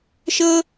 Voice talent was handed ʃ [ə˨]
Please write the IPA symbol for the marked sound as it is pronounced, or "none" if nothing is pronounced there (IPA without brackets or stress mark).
ə˦